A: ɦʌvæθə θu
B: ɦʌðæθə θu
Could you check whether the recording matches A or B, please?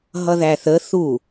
B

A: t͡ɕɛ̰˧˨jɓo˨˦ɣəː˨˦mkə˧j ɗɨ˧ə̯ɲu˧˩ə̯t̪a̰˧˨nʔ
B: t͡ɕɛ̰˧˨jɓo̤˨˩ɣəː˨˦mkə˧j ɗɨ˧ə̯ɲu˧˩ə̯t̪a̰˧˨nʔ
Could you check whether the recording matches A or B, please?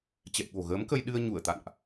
B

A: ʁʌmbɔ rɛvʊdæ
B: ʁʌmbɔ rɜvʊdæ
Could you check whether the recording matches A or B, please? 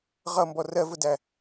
B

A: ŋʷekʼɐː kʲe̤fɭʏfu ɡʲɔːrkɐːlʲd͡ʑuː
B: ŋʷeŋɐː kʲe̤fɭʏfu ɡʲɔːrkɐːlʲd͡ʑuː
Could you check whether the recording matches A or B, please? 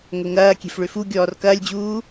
B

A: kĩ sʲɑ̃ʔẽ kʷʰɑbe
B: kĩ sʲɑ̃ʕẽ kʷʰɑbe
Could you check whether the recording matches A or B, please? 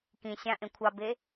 A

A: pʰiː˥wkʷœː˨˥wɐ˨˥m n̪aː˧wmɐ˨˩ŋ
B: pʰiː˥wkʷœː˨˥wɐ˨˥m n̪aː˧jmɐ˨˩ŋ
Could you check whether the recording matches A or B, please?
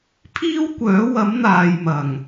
B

